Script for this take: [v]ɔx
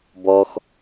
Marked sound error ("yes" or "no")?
yes